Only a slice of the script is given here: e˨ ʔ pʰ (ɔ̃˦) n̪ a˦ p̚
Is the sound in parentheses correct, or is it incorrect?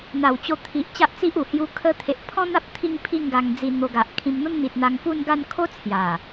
correct